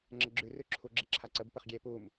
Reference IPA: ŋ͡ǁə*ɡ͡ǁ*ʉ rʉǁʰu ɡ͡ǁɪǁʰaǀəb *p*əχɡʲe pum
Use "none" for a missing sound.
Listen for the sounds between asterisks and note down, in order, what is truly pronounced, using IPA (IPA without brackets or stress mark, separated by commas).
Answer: ɡ͡ǁ, p